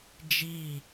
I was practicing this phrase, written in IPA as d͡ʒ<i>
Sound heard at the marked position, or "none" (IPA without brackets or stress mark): i